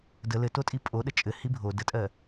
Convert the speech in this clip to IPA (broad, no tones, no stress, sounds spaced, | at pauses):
d ə l ɘ t o tʼ i pʼ o ɗ ə t͡ʃʼ ɘ h i bʱ o d ə tʼ ɜ